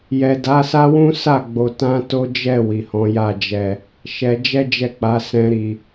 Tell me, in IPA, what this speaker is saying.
j ɛ˨ d a˨˦ s a˦ w ũ˦ s a˦˨ ɡ͡b o˨ t ã˧ t o˦ d͡ʒ ɛ˦˨ w i˨ h ɔ̃˨˦ j a˦˨ d͡ʒ ɛ˨ | ʃ ɛ˧ d͡ʒ ɛ˦ d͡ʒ ɛ˦˨ k͡p a˨˦ s ɛ̃˧ ɾ i˨

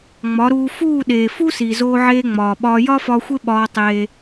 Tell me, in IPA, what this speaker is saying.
ŋ͡m ɒ˨˦ ɾ uː˧ f uː˦˨ ɗ eː˨ f u˦ s i˨ z oː˧ ʕ eː˧ ŋ͡m ɒː˨ ɓ ɒː˧ j ɒ˦ f ɒː˧ xʷ e˦ ɓ ɒː˧ tˤ eː˧

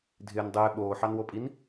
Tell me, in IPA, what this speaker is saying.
dʱ ɪː n dˤ ɪː ɓ oː ħ ɑ n w o pʼ i n

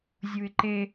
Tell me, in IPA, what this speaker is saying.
zʲ u ɪ̯ ǃ e

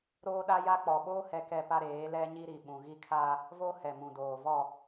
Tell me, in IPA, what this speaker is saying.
ɾ oː˦ ɗ a˦ j a˦ k͡p ɔ˨ ɓ oː˦ h ɛ˦ k ɛ˦ p a˦ ɾ eː˨˦ l ɛ˦ ɲ i˦ ɾ i˨ ɓ ũ˨ ɣ i˦ kʰ a˦ | v o˦ h ɛ˨ m ũ˨ d oː˨ v ɔ˦˨

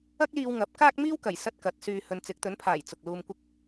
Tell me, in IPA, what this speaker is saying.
ɐ˥ k̚ l iː˧ w ŋ ɐ˨˥ p̚ k aː˥ k̚ m iː˥ w k ɐ˨˩ j s ɐ˥ t̚ k ɐ˨˥ t̚ s yː˧ h ɵ˨ n t͡s ɪ˨˥ k̚ t̪ ɵ˨˥ n pʰ aː˨˩ j t͡s ʊ˨ k̚ l uː˧ m kʷ ɪ˥ k̚

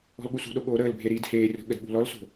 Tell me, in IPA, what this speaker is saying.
ɔ̤ l ɠ u s ṳ ɗ o ɠ oː ɾ əː l bʱ e ɾ i d h eː rʲ ɔ̤ ɠ ə d ɓ ṳ l ɔ l s o̤

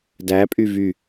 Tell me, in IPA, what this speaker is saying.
d æ pʼ y v y

